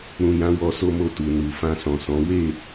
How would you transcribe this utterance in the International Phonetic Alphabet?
ɾ ũ˨ j ã˨˦ w ɔ˧ s o˦ m o˦˨ t u˨ n u˨ f ã˧ s ɔ̃˨ s ɔ̃˨˦ w e˦˨

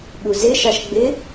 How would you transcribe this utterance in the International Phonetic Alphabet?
ɓ u z ɪ ʃ ɑ ʃ ɡ͡b ɪ

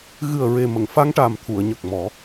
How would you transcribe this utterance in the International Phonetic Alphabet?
ɣ ɨ˨˩ ə̯ ɹ e˨˩ m ə˨˩˨ ŋ f a˧ ŋ ʈ a˨˩ m t̪ʰ u˨˩˨ ə̯ ɲ ə˨˩ k̚ m ɔ˨˩˦

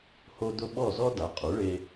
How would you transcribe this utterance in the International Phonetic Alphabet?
h o˥ d ʊ˥ ɓ ɔ˥˩ z ɔ˥ d a˩˥ qʼ u˩˥ ɭ e˧

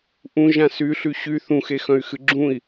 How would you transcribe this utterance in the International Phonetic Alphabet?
ʔ ũ ʒ ã s y ɬ y ɕ y θ ũ x e x œ̃ y̯ x ɨ ɡ͡ǁ ũ i̯

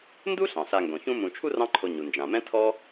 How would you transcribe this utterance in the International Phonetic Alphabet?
n d u˥ ɬ ɑ̃˩ ɬ a˨ ŋ ɡ õ˩ ç ũ˦ m ũ˨ t͡ʃʰ u˥ r ɑ̃˦ ǃʰ o˨ ɲ u˩ n d͡ʒ ã˩ m ɛ̃˥ tʰ ɔ˦

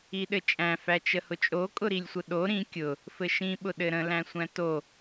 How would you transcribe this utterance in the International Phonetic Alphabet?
i ɗ ɘ t͡ʃʼ æ̃ f æ t͡ʃ ə h ʊ t͡ʃʼ o kʼ ʊ ɾ i lʲ sʷ ə ɗ o ɾ ĩ kʲ ʊ | f ɘ ʃ ĩ ɓ ʊ ɗ ɘ ɾ ə̃ l æ̃ sʷ æ̃ t o

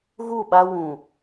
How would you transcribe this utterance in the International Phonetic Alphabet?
ɣ u˦˨ ɓ a˦ w ũ˨

